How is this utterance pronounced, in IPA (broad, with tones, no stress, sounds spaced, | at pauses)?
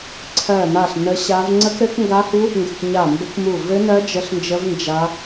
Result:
ǀʰ ɜ˦˨ n a˦˨ ɬ n ə˦˥ ɕ a˦˥ v ŋ͡ǀ ə˦˥ k ɾ ɘ˦˥ k ŋ ɡ a˦˥ h u˦˥ | ŋ ɡ ɘ˦˨ k ɲ a˦˨ m b ɘ˦˥ k m u˦˨ v ɘ˦˥ n ɜ˦˥ d͡ʒ ə˦˥ ɬ n d͡ʒ ə˦˥ v n d͡ʒ a˦˥